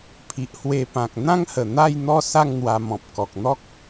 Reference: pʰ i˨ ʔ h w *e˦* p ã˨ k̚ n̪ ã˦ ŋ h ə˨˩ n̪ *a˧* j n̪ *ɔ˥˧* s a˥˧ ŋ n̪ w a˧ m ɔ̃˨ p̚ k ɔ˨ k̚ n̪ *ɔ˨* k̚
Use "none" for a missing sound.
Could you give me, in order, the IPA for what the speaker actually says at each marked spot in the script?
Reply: e˧, a˥˧, ɔ˥˧, ɔ˦

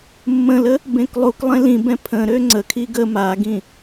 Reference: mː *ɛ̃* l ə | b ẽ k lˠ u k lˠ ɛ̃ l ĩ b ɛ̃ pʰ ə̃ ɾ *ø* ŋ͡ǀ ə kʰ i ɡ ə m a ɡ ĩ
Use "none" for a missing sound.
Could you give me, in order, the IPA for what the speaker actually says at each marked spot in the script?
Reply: ə̃, ø

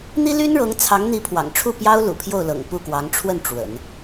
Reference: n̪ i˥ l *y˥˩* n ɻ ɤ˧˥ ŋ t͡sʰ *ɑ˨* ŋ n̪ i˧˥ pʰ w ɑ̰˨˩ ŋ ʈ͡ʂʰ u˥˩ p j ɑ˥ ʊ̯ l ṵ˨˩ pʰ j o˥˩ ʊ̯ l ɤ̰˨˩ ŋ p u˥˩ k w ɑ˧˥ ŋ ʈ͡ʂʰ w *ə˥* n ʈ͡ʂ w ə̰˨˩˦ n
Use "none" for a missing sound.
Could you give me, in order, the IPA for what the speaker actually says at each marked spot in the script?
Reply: y˥, ɑ˧˥, ə˥˩

